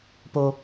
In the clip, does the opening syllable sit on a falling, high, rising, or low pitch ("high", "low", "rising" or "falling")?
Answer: high